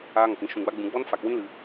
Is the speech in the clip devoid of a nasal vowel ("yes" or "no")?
no